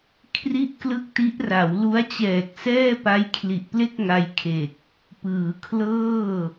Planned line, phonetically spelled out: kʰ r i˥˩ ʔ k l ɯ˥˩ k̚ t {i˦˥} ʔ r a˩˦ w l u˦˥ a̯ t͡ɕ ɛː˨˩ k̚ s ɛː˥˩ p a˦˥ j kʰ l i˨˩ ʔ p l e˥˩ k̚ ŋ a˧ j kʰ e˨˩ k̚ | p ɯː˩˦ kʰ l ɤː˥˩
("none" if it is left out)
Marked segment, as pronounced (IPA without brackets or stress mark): i˦˥